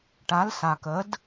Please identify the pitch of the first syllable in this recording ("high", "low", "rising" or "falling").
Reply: rising